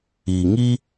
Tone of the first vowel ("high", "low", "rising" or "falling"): low